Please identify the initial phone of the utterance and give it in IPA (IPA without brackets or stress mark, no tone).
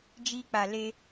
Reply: d͡ʒ